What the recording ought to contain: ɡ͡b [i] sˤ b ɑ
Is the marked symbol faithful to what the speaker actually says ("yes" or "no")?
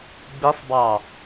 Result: yes